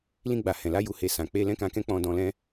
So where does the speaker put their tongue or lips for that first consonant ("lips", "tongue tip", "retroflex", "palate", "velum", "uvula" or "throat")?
tongue tip